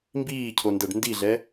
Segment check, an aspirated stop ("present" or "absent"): present